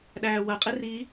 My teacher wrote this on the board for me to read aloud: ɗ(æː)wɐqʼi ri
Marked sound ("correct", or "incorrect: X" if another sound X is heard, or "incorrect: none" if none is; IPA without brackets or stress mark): correct